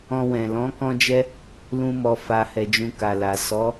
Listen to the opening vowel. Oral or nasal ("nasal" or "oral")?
nasal